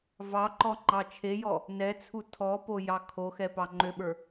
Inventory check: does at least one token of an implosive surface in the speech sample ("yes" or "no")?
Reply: yes